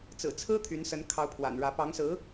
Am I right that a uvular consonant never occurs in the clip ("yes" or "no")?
yes